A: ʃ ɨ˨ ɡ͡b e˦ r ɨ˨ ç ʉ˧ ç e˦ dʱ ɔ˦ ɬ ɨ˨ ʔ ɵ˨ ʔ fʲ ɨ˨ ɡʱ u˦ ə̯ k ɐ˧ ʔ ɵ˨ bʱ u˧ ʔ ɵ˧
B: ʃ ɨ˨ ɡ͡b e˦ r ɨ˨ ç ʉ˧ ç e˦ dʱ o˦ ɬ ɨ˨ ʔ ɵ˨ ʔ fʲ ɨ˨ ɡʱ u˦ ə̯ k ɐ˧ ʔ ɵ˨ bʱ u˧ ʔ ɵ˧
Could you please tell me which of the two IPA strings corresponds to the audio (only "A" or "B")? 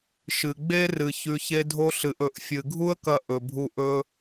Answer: B